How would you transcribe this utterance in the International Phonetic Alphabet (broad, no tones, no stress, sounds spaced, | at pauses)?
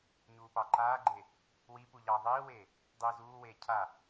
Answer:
ɲ uː p ɑ ǃ aː ɡ͡ǃ e | w i p u ʎ ɑ ðˤ iː w eː | dˤ iː z uː w eː cʰ a